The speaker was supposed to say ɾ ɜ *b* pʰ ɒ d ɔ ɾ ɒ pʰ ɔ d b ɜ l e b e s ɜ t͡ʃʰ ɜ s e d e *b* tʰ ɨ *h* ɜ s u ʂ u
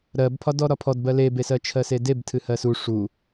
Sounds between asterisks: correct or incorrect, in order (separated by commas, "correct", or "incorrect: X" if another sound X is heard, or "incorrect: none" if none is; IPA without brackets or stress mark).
correct, correct, correct